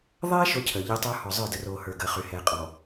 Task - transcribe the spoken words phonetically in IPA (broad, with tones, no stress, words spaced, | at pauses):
ðˤɛː˦ ʃo˦cʰəː˨ ʎəː˦tˤə˞˦ hɔ˨zˤə˞˦˨də˨roː˨ hə˞˨ɡəː˨ χy˨hɛː˨ qʼɔ˨